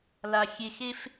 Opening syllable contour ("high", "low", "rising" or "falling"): low